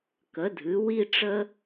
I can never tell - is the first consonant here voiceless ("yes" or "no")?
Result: yes